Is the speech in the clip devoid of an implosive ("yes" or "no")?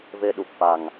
no